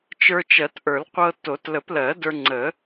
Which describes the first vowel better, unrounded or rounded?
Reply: unrounded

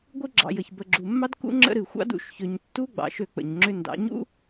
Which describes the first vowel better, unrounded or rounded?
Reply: unrounded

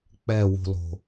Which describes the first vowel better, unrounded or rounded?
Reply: unrounded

